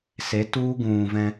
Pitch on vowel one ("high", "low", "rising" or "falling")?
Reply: rising